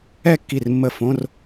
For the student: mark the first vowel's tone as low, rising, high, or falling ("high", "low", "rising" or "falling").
falling